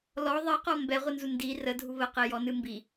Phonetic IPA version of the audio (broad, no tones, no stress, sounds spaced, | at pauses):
l ɔ ðˤ i q ɔ m b ɛ ʁʷ ɨ n z u n d i r ə dʱ u β ə q e j ɔ n ɨ m b i